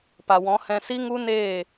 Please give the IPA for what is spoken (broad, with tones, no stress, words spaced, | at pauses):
pa˨wɔ̃˨˦hɛ̃˧si˦ ŋu˦neː˦˨